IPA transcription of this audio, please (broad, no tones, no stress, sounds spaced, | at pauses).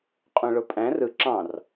qʼ ũ ɭ o pʼ æ̃ r ɯ ǁ ɑ̃ r